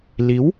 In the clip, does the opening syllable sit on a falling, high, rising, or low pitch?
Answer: rising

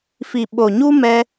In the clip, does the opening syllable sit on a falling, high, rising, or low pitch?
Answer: low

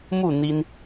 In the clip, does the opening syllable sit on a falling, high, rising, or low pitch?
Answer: falling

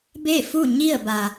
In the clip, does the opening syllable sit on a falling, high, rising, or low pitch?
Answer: falling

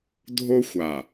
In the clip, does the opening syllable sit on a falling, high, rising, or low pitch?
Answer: high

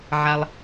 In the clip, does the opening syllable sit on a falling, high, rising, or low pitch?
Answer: high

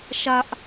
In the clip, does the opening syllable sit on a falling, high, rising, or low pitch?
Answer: high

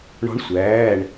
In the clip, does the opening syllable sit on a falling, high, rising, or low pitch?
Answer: rising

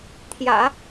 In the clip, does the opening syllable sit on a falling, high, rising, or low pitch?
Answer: low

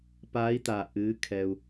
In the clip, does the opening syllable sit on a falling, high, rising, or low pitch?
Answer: rising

